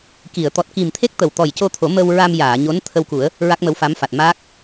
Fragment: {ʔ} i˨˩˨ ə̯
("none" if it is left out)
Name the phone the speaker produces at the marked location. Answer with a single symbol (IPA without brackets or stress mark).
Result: k